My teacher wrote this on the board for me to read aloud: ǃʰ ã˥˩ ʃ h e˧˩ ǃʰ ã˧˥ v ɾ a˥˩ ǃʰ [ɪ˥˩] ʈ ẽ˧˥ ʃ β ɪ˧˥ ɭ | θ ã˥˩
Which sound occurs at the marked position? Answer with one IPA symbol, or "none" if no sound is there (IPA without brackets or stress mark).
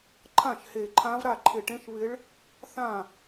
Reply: ɪ˧˩